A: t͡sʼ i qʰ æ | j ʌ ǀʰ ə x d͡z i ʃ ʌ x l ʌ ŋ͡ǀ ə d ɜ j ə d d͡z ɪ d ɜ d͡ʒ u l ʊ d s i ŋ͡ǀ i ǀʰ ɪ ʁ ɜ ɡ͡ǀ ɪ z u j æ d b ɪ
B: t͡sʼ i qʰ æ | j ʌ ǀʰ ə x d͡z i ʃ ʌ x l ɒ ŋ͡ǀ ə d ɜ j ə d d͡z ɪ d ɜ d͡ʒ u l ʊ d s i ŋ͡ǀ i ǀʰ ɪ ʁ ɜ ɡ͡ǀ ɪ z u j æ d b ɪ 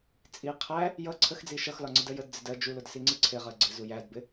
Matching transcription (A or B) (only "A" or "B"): B